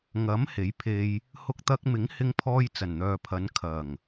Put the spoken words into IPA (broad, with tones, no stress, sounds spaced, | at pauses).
ŋ ɐ˨˥ m h e˨˥ j pʰ e˧ j | h ʊ˧ k̚ t̪ ɐ˧ k̚ m ɪ˨˥ ŋ h ɪ˧ ŋ pʰ ɔː˧ j t͡s ɐ˨˩ n n̪ œː˨ pʰ ɐ˨˧ n kʰ ɐ˨˩ ŋ